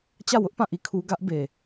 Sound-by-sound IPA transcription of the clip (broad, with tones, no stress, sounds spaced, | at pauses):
t͡ɕ ä˦˨ w ʊ˦ ʔ p ã˦˨ ʔ i˦˨ kʰ u˦ ɡ ä˦ ʔ b e˨